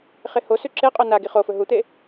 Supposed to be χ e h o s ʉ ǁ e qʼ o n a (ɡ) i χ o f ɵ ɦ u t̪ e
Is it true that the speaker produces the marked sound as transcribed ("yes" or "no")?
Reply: yes